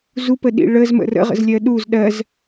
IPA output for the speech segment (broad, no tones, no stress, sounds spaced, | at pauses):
z u p ə ɗ ḭ ɭ ə z m ə̰ r ə̰ ʁ ə̰ z lʲ ɜ ɗ u z ɗ ɜ z